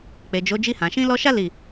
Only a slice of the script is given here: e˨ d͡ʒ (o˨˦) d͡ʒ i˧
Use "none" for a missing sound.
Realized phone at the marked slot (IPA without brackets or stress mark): o˨˦